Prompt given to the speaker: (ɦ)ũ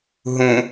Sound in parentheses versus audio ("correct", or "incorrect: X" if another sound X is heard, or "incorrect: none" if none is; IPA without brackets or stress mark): correct